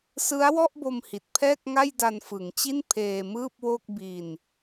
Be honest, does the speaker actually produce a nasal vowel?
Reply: no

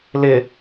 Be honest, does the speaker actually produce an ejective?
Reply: no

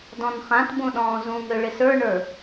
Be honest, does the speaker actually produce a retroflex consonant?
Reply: yes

